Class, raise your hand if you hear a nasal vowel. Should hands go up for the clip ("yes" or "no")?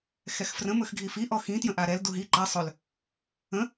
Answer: yes